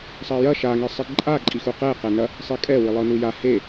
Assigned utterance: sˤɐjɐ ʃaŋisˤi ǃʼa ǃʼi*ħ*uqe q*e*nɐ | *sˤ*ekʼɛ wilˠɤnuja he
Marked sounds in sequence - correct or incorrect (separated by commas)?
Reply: incorrect, incorrect, correct